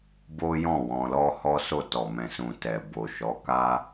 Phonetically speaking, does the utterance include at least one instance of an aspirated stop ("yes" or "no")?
no